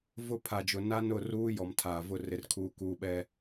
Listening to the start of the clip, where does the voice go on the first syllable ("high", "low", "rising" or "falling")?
falling